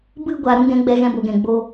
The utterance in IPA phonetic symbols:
b ɨ˧ ɡʷ a˨ ɾ ũ˦ ɡ ɛ̃˨˦ ɡ͡b ɛ˧ ɣ ɛ̃˧ b o˨ ɡ ɛ̃˨ ɡ͡b o˦

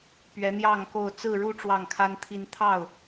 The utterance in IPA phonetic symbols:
p ɥ ɛ˨˦ n̪ j ɑ˥˨ ŋ k o˥˨ ʊ̯ t͡s ɹ̩˥˨ ɻ u˥˨ ʈ͡ʂ w ɑ˥˨ ŋ kʰ a˦ n t̪ʰ i˦ n t̪ʰ ɑ˥˨ ʊ̯

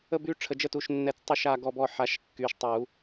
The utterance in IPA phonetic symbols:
ə˦˨ b y˦˨ ʈ͡ʂʰ ə˩˧˩ d͡ʒ ə˦˨ t u˩˧˩ ʃ nː ɛ˨˩˦ t͡s tˤ u˦˨ ʃ a˦˨ ɡ ɔ˦˨ b ɔ˦˨ ħ a˨˩˦ ʃ kː y˩˧˩ ʃ tˤ u˨˩˦

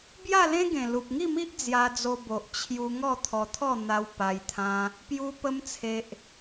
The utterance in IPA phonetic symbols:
b j a˥˧ l ẽ˦ ɡ ẽ˨˩ l u˨ p̚ ŋ i˥˧ m i˦ ʔ d͡z j a˧ d͡z o˧ b o˨ ʔ t͡ɕʰ j u˧ ŋ ɔ˥˧ t̪ʰ ɔ˧ t̪ʰ ɔ˥˧ n̪ a˧ w p a˧ j t̪ʰ ã˧ | p j u˧ p ə˧ m t͡sʰ e˨ ʔ

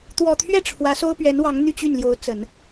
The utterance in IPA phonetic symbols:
t̪ w ɔ˨˩ t̪ʰ ɥ ɛ˥˩ ʈ͡ʂʰ w ä˧˥ s o˥ ʊ̯ p ɥ ɛ˧˥ n w ɑ˧˥ ŋ n̪ y˥˧ t͡ɕ y˥˩ n l j o˧˥ ʊ̯ t͡s ə˨˩˦ n

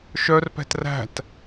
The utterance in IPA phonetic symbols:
ʃ œ r p ɛ̤ t r æ̤ t

